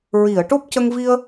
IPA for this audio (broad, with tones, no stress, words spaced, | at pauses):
ɹi˨˩˨ə̯ ʈo˦˥p̚cə˧ŋ vi˧ə̯